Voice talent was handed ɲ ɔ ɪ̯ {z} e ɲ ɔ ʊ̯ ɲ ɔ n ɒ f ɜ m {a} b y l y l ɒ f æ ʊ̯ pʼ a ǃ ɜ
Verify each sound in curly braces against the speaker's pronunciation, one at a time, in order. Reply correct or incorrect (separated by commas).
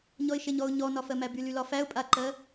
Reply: incorrect, incorrect